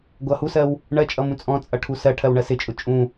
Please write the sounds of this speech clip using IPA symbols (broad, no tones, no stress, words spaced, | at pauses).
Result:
ɡʷʌ husɜw | ɳɜt͡ʃʼʌ mũt͡sʼɔ̃t͡sʼʌ ʈʰusɜʈʰɜw ɳɜsɪt͡ʃʼʊ t͡ʃʼũ